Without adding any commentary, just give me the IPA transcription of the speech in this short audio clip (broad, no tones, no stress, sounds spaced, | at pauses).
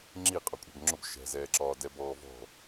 ŋ͡ǁ i qʼ ɒ kʷʼ ɛ̤ b ŋ͡ǁ ʊ b ʃ ɛ̤ z ɛː ǁ ɒː d ɛ b ɔː v ɔ̤